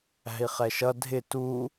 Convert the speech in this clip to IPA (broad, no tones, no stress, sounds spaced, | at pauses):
æ̤ i̯ χ ɛ ʃ ʌ dʱ ɪ t u